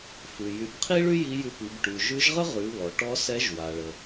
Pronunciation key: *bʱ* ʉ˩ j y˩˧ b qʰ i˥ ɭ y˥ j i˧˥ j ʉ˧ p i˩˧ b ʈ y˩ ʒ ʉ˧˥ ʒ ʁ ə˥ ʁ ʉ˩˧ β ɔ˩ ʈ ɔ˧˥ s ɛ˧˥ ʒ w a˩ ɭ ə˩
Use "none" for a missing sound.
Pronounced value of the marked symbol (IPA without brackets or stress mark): f